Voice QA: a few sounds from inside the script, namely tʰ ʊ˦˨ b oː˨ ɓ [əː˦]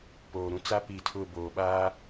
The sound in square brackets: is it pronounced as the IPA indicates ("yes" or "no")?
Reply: no